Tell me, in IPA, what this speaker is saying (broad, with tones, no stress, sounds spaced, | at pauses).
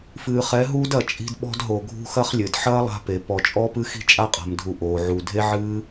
f ɨː˨ χ ɛ˨˦ ɦ uː˦ d ɐ˧ t͡ʃʼ i̤˧ d ɓ ɔ̤˧ d ɦ o˨ ɡʱ ṳ˧ x ɐ˦ χ lʲ ɘ˨ d ħ ɐː˦ lˠ a̤˧ p e˨ p ɔ˨ t͡ʃʼ ɔː˦ p ɨ˦ x i̤˦ t͡ʃʼ a˦ qʼ a̤˨ m dʱ u˨ ʔ oː˨ ʕ u˨ dʱ e˦ ʕ ɨː˦